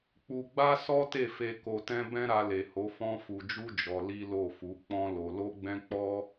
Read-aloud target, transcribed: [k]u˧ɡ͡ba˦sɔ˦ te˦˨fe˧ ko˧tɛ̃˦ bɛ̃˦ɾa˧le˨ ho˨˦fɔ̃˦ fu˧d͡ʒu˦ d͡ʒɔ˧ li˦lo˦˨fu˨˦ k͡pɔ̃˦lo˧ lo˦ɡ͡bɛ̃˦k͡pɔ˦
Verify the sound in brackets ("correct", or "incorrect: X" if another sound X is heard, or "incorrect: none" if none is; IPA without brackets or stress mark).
incorrect: k͡p